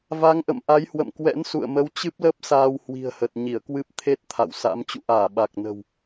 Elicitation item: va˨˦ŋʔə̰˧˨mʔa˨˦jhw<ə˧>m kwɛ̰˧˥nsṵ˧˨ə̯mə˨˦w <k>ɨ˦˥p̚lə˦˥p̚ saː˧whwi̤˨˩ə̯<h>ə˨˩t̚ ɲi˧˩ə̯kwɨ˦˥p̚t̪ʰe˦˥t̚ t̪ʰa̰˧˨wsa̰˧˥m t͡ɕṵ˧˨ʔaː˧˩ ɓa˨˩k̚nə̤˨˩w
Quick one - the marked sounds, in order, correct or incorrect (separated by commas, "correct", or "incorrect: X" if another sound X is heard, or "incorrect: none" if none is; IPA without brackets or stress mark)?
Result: incorrect: ə̰˧˨, incorrect: t͡ɕ, correct